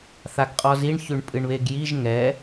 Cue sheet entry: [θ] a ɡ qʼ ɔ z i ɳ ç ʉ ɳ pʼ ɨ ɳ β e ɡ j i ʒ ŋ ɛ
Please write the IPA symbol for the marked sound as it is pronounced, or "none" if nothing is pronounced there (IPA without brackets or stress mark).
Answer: θ